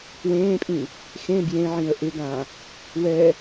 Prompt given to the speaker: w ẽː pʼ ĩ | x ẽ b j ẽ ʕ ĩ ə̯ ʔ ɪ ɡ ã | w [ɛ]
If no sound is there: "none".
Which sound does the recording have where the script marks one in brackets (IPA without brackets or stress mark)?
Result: ɛ